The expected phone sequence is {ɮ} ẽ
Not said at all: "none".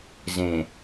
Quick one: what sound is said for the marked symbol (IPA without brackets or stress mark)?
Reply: z